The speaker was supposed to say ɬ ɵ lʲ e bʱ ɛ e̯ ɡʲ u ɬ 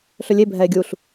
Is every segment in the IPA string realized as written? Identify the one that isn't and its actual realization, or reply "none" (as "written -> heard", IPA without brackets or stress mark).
none